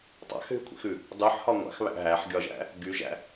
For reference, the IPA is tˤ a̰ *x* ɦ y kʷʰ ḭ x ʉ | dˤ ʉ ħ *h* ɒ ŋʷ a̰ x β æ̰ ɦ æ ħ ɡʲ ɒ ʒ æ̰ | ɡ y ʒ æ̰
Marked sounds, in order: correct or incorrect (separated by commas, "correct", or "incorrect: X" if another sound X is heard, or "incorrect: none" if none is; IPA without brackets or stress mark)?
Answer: correct, correct